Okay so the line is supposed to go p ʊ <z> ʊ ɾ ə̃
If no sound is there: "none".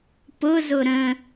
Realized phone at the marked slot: z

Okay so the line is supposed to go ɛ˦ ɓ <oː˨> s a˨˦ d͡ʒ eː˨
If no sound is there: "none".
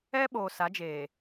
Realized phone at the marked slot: oː˨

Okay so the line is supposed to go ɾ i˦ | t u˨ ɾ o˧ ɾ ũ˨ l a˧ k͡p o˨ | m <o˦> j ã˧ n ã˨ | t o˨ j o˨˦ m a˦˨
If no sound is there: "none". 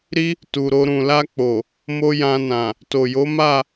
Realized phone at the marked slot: o˦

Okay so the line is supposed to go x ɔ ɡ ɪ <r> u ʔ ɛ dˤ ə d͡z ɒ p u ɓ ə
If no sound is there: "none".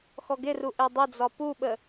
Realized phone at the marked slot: r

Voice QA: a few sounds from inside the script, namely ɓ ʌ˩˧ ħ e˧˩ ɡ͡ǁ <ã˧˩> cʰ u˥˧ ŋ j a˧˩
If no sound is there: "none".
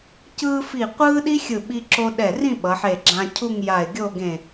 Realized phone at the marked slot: ã˧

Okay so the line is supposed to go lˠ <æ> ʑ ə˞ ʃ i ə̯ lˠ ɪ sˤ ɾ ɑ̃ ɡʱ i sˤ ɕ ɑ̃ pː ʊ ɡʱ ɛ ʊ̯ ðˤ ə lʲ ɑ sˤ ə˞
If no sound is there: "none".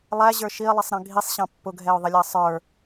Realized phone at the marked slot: æ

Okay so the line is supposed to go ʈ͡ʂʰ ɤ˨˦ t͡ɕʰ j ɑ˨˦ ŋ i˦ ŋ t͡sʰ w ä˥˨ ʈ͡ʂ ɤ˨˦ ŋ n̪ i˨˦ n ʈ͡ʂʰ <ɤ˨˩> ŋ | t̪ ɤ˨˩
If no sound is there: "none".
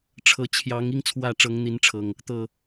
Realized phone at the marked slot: ɤ˨˩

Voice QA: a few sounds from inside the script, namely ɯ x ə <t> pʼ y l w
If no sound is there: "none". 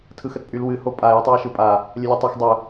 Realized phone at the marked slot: t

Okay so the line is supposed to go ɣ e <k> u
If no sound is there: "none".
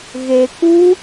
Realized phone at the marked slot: k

